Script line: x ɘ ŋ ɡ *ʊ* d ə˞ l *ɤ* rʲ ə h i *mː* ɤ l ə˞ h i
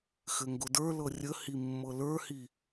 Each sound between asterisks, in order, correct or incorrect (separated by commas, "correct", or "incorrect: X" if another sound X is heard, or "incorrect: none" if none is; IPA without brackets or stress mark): correct, correct, correct